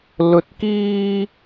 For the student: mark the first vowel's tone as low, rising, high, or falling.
low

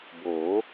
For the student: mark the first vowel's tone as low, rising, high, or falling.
rising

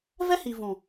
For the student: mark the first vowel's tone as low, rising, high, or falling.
high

